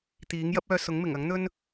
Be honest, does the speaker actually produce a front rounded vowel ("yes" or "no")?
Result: yes